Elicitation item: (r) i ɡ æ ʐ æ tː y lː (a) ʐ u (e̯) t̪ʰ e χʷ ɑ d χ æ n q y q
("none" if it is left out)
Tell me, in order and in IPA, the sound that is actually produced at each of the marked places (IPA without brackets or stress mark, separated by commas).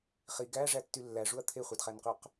χ, æ, ɐ̯